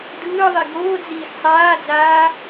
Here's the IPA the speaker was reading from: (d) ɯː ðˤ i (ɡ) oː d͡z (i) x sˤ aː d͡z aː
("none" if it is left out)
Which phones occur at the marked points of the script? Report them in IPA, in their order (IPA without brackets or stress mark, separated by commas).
d, ɡ, iː